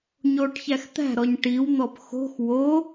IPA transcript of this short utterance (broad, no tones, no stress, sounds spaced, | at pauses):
ɲ oː ʈ ç æ x t̪ æ̤ ɾ ɔ ɲ ʈ i w n̪ ɔ p x o̤ x w o